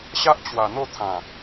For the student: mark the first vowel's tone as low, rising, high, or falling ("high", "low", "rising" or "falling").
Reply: high